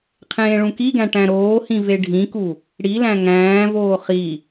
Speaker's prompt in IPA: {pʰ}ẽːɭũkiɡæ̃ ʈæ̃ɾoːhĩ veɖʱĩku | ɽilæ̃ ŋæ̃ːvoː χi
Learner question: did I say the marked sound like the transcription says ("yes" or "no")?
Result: no